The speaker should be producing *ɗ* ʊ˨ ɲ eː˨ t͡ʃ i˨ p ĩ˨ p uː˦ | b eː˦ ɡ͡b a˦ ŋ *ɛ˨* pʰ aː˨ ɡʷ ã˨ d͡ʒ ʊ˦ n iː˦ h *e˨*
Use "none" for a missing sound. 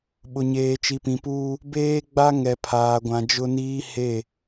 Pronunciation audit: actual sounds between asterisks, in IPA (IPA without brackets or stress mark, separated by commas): ɓ, ɛ˨, e˦˨